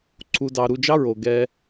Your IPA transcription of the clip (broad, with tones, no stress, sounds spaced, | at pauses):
ǀʰ u˧ d ɑ˧ ɾ u˧ d͡ʒ ɑ˦ ɹ o˨ ɡ ɛ˧